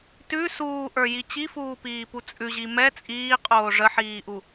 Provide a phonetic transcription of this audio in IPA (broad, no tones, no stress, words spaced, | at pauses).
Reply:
tʉ suːʔə˞ji t͡ɕifuːpiːpu t͡sʼʉʑi mɛ t͡sʼiːqʼoː ʐəħiːʔu